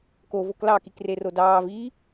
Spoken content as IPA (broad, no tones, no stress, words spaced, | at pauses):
ko voklɑkik rerodɑːviː